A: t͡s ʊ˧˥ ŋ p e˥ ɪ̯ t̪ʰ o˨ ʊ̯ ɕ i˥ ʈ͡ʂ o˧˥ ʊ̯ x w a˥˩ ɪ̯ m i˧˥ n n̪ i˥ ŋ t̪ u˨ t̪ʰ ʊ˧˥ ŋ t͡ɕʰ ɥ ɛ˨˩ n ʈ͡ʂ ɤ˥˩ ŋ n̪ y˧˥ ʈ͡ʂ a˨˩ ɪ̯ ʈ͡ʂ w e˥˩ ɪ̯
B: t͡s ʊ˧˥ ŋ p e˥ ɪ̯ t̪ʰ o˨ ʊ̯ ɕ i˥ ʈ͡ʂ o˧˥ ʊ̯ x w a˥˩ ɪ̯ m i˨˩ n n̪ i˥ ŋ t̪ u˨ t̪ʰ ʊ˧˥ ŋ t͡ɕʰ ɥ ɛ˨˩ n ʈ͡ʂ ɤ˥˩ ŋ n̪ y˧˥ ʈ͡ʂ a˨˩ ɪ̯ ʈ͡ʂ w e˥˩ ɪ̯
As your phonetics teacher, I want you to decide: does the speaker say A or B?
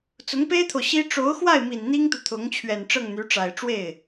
B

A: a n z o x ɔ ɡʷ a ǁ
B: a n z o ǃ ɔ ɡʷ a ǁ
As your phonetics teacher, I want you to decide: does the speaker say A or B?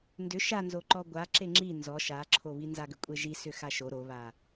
B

